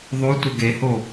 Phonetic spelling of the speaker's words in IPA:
ðˤ o tʷ ə ɡ e h o

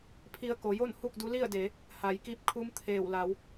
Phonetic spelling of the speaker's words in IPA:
pʰ i˧ ə̯ k o˩˧ j o˥˨ n h u˥˨ k̚ d u˧˥ l i˥˨ ə̯ d e˩˧ | h a˩˧ j k i˧ p̚ kʰ u˧˥ m t̪ʰ eː˧˩ w l a˩˧ w

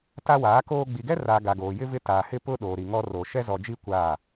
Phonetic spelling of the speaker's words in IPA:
t a˦ w aː˨˦ k oː˦ ɡ͡b i˨ ɡ ɛ˦ r aː˨ ɡ a˨ ɡ oː˨ j ɪ˦ v ɪ˦ t aː˨ h ɪ˦ p ʊ˦ ɗ oː˨ ɾ i˨ ŋ ɔ˦ r oː˨ ʃ ɛ˦ z ɔ˨ d͡ʒ i˦ kʷ aː˦˨

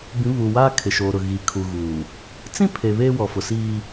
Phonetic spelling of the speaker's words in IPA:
b ĩ˨˦ β u˨ w aː˦ kʰ ɪ˨ ʃ oː˨ ɾ ʊ˨ ɣ i˨ kʰ u˨ ɣ uː˨ | t͡s ĩ˦ pʰ e˨ β eː˦ w ɔ˨ f ʊ˨ s iː˦

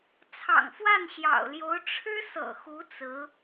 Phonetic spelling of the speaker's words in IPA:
t͡sʰ ɑ̰˨˩ ŋ f w a˥˩ n ɕ j ɑ̰˨˩ ʊ̯ l j o˧˥ ʊ̯ ʈ͡ʂʰ ɻ̩˥ s ɤ̰˨˩ x u˧˥ t͡s ɹ̩˧˥

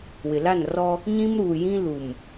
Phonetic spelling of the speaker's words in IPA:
w ɪ˨ l a˦˨ n r ɔ˦ | ɲ ĩ˦ m ɾ uː˨ j ĩ˦ l u˨ m

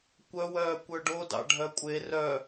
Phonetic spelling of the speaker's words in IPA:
kʷ œ w œː kʷ œ ɖ o d ɑ̰ ɖʱ œ kʷʼ e r œ

